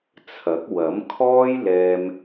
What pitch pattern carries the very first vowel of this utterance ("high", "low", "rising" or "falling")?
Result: rising